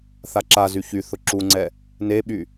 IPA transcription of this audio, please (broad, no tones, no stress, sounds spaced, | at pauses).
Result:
θ a ǁ a z y ç y θ ʊ ǁ u ŋ͡ǀ ɛ | n e ɓ y